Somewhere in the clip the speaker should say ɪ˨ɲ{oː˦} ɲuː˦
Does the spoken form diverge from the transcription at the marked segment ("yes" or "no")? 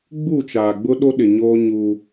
no